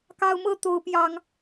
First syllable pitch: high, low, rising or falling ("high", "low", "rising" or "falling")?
high